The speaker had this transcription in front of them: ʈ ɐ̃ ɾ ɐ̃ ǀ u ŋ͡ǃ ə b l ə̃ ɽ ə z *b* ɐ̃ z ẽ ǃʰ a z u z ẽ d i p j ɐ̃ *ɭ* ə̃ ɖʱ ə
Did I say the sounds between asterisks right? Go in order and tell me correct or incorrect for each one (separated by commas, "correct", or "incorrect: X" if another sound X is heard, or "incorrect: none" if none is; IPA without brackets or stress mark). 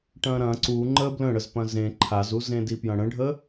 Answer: incorrect: p, incorrect: ɽ